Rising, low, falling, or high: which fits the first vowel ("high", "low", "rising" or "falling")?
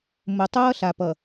low